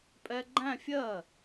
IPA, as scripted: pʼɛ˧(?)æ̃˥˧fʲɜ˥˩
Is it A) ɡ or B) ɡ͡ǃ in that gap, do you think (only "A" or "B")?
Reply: B